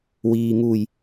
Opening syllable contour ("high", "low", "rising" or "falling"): low